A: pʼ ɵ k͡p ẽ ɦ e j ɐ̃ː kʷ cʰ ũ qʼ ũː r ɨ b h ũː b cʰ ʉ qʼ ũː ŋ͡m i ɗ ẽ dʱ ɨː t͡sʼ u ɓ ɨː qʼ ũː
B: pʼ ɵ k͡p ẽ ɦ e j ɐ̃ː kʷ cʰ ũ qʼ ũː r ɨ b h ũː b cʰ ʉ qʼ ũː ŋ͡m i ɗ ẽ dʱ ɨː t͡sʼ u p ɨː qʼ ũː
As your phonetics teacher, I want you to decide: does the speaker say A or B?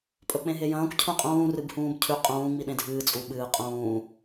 A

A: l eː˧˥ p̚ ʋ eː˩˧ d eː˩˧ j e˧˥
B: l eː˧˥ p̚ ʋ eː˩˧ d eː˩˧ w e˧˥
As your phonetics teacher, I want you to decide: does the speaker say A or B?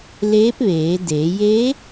A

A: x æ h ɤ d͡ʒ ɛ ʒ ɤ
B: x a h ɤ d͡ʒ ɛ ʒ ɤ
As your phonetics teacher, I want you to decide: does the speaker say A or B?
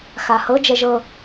B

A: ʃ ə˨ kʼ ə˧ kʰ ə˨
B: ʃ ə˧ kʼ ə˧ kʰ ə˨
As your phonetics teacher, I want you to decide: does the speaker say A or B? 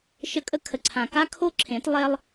B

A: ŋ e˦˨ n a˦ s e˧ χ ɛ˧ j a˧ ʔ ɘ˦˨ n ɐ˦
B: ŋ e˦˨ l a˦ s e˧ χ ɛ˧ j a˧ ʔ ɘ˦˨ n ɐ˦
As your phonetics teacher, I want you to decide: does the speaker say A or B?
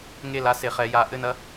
B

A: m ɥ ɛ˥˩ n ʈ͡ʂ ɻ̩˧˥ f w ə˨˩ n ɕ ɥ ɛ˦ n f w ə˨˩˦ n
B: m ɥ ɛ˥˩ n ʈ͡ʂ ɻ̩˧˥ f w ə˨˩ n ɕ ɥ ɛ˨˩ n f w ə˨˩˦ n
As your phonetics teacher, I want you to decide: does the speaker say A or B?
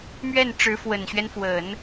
A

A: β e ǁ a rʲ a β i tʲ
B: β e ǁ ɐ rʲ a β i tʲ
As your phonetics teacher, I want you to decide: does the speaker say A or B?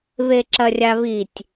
B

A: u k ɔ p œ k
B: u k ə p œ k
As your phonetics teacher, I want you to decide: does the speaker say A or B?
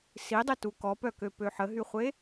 A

